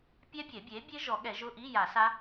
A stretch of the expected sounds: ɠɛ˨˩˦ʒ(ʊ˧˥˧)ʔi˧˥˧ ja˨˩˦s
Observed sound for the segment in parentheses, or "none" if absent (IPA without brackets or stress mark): ʊ˧˥˧